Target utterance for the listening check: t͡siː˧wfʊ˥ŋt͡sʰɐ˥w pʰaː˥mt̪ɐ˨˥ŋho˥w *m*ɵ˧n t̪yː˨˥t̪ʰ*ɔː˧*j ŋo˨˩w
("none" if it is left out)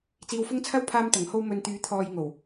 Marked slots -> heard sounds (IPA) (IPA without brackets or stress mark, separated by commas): m, ɔː˨